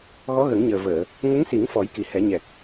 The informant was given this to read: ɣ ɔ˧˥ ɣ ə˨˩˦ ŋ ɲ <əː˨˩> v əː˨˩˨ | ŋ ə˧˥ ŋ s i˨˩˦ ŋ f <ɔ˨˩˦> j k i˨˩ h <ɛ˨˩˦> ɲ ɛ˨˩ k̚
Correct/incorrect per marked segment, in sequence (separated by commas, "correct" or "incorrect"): correct, correct, correct